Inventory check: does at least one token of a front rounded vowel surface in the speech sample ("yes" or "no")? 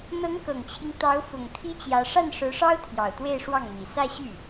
yes